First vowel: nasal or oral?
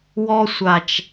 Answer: oral